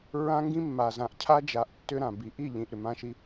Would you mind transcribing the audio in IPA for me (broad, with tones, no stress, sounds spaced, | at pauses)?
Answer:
ɹ ã˦ ŋ ɡ ĩ˦ mː a˨ z ã˨ ʔ cʰ a˦ d͡ʒ a˨˦ ʔ tː ʏ˦ ɾ ã˨ b i˨ ʔ i˦˨ ʎ ĩ˨ ʔ ɾ ʏ˨ m ã˦ ʃ i˦